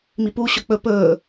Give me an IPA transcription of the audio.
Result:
m i p u ɕ ɵ k͡p ɵ p ɵː

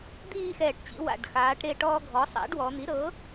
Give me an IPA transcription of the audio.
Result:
d̪ iː˦˨ x ɛː˨˩ ʈ t͡ɕ ḭ˩˧ w a̰˨˩ ɖ x aː˩˧ ʈ ɾ e˦˨ ʈ ɔː˦ ɡʱ ɔ˩˥ sˤ a̰˩˥ ɖ w ɔ˩˧ n̪ i˩˥ ɾ ɤ˩˥

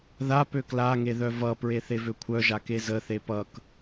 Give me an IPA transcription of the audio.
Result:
ð a p ø k l a ŋ e ð œ v ʌ p ɹ e θ e v ø kʷʰ œ ʒ a k e z ə θ e p ʌ k

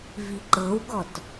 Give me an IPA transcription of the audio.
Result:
v i ǃ ɤ w ɡ ɔ t

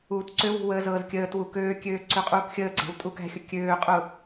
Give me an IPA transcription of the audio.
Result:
uː t ǀ ø w ṳ w əː z ɤː z kʲ əː t w u k øː kʲ øː ǀ ø qʼ uː k xʲ əː ɡ͡ǀ æ̤ w tʼ u k æ̤ xʲ ʊ kʲ øː qʼ ʊ

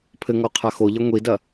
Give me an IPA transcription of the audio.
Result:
pʰ ɘ ŋ ɔ qʰ a x o ʎ ɐ ŋʷ i d ɐ

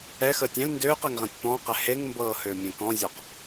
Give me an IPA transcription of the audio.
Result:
ɛ x əː tʲ ɛ̃ l n d øː q ɛ ŋ ʁ æ̃ tʲ p ɔ̃ː q ɛ h e ŋ m b ɤː h øː mʲ ẽ k ɔ̃ zʲ ɔ q

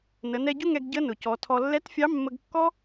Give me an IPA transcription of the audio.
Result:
n ə˩˧ n ɛ˧ ɟ ʊ˥ ŋ ɛ˧ ɡ ɟ ə˧˥ n ʊ˩ c ɔ˩˧ tʰ ɔ˧ lː ɛ˧˥ t fʲ ɑ˧˥ mː ə˧ ɡ kː ɔ˥

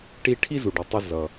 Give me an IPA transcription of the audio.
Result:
ʈ i˧ ʈʰ i˧ z u˩ ɖ i˩ tˤ ʌ˧ z ʌ˩

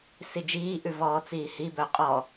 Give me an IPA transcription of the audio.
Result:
s i d͡ʒ iː ʔ ʉ v ɔː t͡s iː h i b œ qʼ ɔ

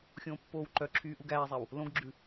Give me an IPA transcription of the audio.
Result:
xʲ õː pː oː w ǃ œ ǁʰ yː ʔ u ɡ æː zˤ æ w | l õ ɡ ɡ͡ǁ ʉ

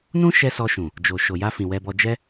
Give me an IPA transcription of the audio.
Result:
n ũ˦ ʃ ɛ˧ s ɔ˧ ʃ ũ˨ | d͡ʒ o˨ ʃ o˨ j a˧ f ĩ˨ w ɛ˧ b ɔ˧ d͡ʒ ɛ˦

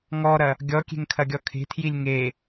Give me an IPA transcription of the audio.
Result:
ŋ ɔ ɾ ɐ | ɡʲ ɔ kʲ e̤ ŋ kʰ ɐ ɡʲ ɔ kʰ e̤ tʰ j i lʲ ŋ e

